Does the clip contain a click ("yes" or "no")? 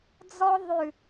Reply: no